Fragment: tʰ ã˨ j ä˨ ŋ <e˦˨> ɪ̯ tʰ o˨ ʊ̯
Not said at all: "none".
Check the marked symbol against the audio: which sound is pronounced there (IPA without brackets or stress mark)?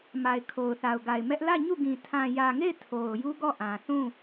e˦˨